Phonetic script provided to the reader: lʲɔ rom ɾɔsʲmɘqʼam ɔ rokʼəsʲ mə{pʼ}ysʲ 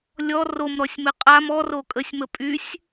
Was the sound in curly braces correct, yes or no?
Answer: yes